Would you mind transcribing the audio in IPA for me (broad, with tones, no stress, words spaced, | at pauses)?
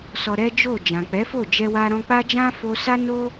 sɔ˧ɾɛ˦d͡ʒo˦˨ d͡ʒã˨k͡pɛ˨˦fo˦˨d͡ʒɛ˧ wa˧ɾɔ̃˧k͡pa˦d͡ʒã˦ fo˧sa˦ no˦